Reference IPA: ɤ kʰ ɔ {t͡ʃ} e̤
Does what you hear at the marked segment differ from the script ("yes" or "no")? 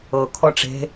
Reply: yes